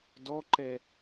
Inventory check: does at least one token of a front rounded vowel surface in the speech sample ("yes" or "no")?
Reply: no